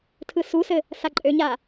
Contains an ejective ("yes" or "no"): yes